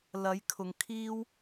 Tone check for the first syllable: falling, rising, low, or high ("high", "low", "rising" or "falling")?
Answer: rising